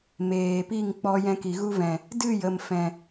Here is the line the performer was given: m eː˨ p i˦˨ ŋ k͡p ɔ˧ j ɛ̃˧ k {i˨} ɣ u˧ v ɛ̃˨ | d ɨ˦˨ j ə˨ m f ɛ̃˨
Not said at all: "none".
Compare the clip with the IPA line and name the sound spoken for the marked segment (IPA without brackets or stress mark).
i˨